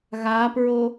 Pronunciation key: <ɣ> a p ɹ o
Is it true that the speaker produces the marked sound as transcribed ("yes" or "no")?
yes